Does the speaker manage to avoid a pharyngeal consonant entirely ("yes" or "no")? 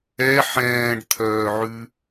no